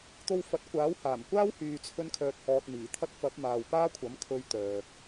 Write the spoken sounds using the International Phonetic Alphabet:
t̪ o˧ w f ɐ˨˥ t̚ kʷ aː˨˥ w h aː˨˩ m kʷ aː˥ w h yː˨ t͡sʰ ɵ˧ n kʰ œː˨ t̚ h ɔː˨ t̚ n̪ iː˨˩ t̪ʰ ɐ˥ t̚ f ɐ˨˥ p̚ m aː˨ w p aː˥ kʷʰ ɐ˨˥ m kʰ ɵ˧ ɥ t̪ œː˨ k̚

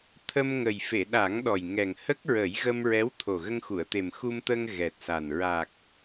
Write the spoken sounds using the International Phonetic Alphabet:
t̪ʰ ə˧ m ŋ ə˨˩ j f e˨˩˨ ɗ a˨˩˦ ŋ ɗ ɔ˨˩ j ŋ ɛ˨˩ ŋ h ə˦˥ k̚ ɹ ə˨˩˦ j ɣ ə˧ m ɹ ɛ˧˥ w t̪ʰ o˨˩ ɣ ə˧ ŋ x u˨˩˨ ə̯ t̪ e˨˩ m x u˧ m t̪ əː˧ ŋ ɣ ɛ˨˩ t̚ s a˨˩ n ɹ a˨˩ k̚

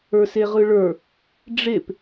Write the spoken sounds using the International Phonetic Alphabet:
ə˞ s e ʁ ɯ ɭ ə˞ | ɖ͡ʐ e p

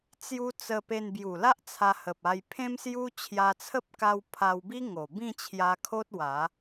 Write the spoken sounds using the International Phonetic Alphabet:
t͡s j u˧ t͡s ə˧ p e˧ n b j u˨˩ l a˦ ʔ t͡sʰ a˧ h ə˨ p̚ a˧ j pʰ ẽ˦ m s j u˦ t͡ɕʰ j a˧ t͡sʰ ə˦ p̚ k a˧ w pʰ a˧ w b i˦ ŋ o˨˩ b ĩ˥˧ t͡ɕʰ j a˧ kʰ o˦ t̚ w a˨˦

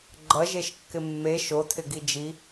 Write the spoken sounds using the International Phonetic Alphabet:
ɡ͡ǃ ʌ ʒ e ʃ kː ɪ mː e ʃ o tʰ ɪ ɡ i d͡ʒ i

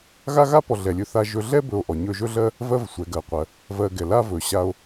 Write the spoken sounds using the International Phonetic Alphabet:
ɣ a˥ ɣ a˥ p ɔ˨ ɮ ɛ˨ lʲ ɵ˦ θ a˦ ʒ ɵ˦ ɮ ɛ˥ b ɵ˨ o̯ ʔ ɔ˩ ɲ ɵ˨ ʒ ɵ˦ ɮ ɜ˦ | v ɜ˦ v sʷ ɛ˩ ɡ ɜ˩ qʷ ɜ˩ | v ɜ˨ ɡ ɛ˩ l a˦ v ɵ˩ ɕ a˨ o̯

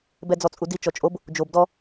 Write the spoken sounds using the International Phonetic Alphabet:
b ɛ d͡z ɔ t͡sʼ u d i t͡ʃ ɔ t͡ʃʼ o b | d͡ʒ o b d ɔ

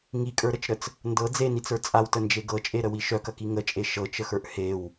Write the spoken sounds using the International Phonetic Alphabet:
ŋ i kʼ ə˞ ɾ ə t͡ʃ ɾ ə t͡s | n d ɤ d͡z e n i t͡s ə˞ t͡sʼ a w t ə n d͡ʒ e ɡ ɤ t͡ʃʼ e ɾ ə w i ʃ œ k ɐ k i ŋ ə t͡ʃʼ e ʃ ɤ t͡ʃ ə x ə˞ ʔ h e w

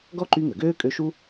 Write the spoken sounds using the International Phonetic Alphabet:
ɡ ɔ˥ ǃ y˦ ŋ ə˩ ɡ øː˥ kʼ ø˦ ʃ u˥

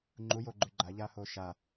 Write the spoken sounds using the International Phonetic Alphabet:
ŋ͡ǃ u j o ɡ͡ǃ ʉ ɡ͡ǃ a ʎ aː h oː ʃ a

